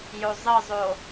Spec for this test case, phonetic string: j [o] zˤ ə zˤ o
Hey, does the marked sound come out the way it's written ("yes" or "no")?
yes